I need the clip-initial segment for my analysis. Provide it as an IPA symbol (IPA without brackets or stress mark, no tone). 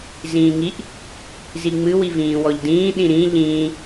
z